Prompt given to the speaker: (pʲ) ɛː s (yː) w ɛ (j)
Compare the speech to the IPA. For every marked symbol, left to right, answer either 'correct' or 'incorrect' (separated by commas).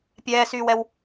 correct, correct, incorrect